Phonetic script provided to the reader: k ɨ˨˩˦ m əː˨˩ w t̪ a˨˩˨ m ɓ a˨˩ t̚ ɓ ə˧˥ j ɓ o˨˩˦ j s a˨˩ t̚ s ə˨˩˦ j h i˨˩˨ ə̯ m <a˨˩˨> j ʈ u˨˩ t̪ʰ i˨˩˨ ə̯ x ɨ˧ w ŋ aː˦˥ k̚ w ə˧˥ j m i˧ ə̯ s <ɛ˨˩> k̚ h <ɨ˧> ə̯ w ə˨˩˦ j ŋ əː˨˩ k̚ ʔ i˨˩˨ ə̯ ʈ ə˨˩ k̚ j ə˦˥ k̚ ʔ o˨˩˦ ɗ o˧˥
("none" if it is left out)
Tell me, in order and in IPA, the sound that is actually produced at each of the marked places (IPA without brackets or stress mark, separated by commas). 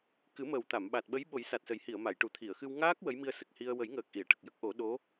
a˨˩˨, ə˨˩, i˧